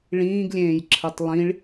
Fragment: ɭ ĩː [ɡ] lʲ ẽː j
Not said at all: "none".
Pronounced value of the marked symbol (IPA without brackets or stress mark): ɡ